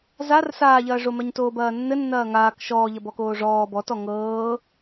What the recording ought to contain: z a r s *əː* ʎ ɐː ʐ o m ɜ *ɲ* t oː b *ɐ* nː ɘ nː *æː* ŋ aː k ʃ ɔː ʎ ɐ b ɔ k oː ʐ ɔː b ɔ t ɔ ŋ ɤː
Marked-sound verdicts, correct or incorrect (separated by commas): incorrect, correct, incorrect, incorrect